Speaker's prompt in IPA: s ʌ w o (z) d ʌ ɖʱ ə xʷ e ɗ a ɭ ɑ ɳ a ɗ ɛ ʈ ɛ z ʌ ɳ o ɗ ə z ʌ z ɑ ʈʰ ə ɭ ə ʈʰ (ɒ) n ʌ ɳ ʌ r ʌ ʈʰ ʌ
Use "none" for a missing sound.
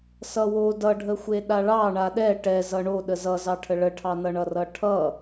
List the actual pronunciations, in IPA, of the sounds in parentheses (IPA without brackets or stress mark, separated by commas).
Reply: none, ɑ